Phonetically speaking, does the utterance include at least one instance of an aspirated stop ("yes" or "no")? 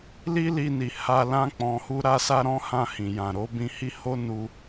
no